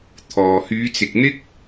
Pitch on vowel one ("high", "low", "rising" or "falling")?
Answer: low